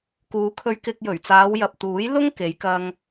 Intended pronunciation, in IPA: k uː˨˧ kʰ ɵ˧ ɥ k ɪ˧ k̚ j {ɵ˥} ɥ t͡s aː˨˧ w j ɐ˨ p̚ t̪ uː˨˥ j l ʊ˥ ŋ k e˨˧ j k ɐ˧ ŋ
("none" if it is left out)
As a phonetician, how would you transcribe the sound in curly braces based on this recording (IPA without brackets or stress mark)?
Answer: ɵ˨˩